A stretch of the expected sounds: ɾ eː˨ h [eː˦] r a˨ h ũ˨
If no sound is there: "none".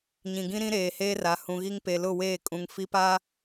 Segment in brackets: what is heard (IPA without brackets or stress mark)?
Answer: eː˦